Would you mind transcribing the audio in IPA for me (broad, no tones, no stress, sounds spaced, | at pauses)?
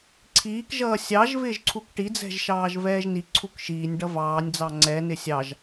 ǀʰ iː k ʒ ʌː sʲ ɑ ʒ v ɪː ʒ ǀʰ u k ʈ i d͡z ɛ̤ ʒ ʃ ɑː ʒ v ɛː ʒ n i ǀʰ u k ʃ iː nʲ ɖ ʌ v ɑː nʲ d͡z ɑ ŋ͡ǀ ɛ n ɪ sʲ ɑ ʒ